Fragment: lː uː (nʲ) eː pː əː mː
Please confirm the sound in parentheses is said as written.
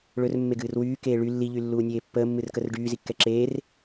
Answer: yes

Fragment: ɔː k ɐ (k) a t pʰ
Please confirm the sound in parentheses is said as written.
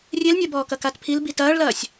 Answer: yes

